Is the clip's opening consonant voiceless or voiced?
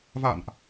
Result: voiced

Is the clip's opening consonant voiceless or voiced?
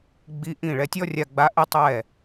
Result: voiced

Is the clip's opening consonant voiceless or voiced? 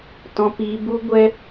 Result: voiceless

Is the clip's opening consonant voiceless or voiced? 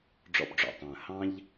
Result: voiced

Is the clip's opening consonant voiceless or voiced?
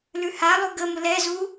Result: voiced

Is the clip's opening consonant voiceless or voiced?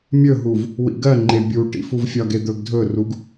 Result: voiced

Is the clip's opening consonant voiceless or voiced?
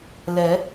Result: voiced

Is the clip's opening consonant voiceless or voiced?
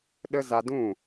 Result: voiced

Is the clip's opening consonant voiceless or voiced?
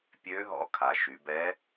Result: voiceless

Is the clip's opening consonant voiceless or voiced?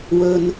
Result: voiced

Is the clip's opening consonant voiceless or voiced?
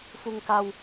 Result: voiceless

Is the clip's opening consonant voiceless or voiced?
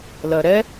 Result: voiced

